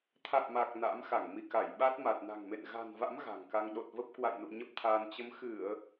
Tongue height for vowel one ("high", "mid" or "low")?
low